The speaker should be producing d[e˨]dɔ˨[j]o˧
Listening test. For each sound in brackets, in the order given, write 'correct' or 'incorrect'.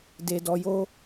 correct, correct

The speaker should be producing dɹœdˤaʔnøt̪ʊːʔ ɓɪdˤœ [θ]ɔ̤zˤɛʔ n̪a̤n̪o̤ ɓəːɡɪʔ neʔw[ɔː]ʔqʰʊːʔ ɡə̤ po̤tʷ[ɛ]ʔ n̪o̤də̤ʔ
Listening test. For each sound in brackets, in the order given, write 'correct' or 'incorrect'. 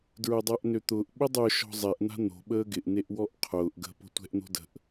incorrect, incorrect, incorrect

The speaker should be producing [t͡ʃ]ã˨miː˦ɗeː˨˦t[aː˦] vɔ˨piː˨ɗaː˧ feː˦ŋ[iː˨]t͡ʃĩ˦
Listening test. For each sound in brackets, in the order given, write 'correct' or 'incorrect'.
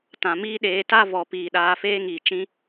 incorrect, incorrect, correct

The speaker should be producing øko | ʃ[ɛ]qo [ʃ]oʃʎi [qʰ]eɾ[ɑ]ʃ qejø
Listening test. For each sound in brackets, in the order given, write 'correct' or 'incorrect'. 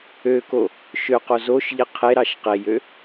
incorrect, incorrect, correct, correct

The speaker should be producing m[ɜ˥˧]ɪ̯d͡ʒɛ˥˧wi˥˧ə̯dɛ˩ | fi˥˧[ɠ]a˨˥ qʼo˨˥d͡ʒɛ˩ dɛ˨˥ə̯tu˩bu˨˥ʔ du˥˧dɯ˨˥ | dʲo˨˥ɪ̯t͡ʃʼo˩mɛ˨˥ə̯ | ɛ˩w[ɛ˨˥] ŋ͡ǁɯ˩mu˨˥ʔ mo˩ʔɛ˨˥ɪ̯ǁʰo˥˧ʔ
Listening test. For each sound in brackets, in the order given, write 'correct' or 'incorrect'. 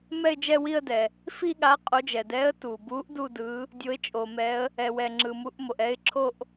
incorrect, correct, incorrect

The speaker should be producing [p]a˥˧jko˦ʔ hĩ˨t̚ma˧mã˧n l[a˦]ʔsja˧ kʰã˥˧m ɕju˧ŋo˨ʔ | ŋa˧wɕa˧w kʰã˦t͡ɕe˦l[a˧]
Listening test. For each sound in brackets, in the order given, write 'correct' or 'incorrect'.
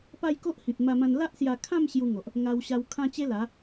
correct, correct, incorrect

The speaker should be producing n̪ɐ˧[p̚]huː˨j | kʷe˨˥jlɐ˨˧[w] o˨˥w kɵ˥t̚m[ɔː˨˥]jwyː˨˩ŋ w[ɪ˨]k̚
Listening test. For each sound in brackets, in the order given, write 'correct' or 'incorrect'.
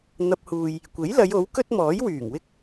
correct, incorrect, correct, incorrect

